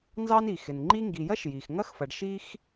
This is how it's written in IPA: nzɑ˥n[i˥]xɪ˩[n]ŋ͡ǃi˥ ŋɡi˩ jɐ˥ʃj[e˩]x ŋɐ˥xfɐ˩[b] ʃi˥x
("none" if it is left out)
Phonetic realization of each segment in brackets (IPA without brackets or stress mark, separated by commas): i˩, n, i˩, ɖ